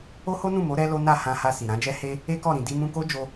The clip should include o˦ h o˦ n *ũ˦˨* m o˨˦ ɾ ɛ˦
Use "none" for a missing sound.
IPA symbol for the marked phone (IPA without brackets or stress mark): ũ˦˨